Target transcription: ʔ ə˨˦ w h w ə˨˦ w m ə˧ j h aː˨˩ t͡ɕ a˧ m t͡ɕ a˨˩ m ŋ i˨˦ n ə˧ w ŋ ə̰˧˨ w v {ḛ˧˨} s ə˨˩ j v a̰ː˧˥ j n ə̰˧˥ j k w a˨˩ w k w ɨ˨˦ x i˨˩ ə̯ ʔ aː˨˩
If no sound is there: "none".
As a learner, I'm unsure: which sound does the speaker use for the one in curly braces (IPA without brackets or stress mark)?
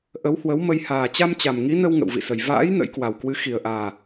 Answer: ḭ˧˨